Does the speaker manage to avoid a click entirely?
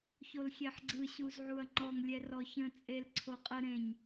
no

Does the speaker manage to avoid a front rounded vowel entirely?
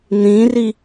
yes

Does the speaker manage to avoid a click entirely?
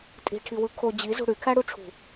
yes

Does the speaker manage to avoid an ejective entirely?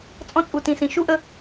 no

